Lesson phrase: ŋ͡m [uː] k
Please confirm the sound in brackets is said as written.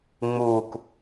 yes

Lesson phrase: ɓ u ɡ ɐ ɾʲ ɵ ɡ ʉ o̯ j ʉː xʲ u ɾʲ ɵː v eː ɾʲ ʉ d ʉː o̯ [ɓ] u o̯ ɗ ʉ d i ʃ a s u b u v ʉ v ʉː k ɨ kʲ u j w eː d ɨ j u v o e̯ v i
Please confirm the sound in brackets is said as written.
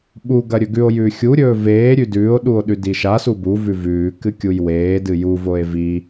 no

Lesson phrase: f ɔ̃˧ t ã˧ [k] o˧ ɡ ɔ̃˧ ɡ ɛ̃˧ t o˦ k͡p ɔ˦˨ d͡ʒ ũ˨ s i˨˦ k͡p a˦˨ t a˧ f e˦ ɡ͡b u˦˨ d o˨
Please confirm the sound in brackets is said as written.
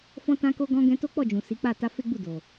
yes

